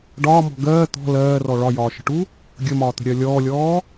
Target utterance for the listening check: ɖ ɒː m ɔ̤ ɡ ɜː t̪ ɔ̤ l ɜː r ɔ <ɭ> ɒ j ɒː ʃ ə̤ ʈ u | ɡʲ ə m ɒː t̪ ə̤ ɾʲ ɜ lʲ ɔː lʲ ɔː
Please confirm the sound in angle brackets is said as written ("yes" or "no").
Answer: yes